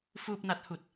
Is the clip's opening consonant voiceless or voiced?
voiceless